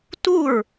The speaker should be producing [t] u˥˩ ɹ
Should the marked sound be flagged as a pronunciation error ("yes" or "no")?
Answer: no